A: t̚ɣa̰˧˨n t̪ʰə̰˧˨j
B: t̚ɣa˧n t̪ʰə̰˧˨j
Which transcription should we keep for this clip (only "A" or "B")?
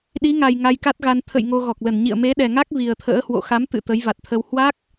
B